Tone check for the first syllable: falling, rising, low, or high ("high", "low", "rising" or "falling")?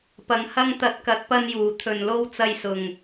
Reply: low